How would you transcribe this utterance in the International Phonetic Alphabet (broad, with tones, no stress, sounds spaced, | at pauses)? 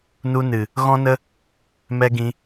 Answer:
n u˧ n ɨ˨ | ɣ ɔ̃˦ n ə˦ | m ɛ˦ ɡ ĩ˧